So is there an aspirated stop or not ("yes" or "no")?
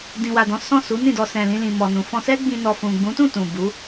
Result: no